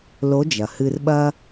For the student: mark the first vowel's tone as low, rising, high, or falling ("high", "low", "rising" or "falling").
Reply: rising